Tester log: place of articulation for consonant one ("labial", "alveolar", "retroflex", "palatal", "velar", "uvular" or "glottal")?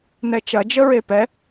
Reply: alveolar